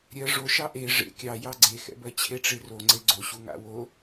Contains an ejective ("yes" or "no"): no